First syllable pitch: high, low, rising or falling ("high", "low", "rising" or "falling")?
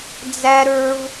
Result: high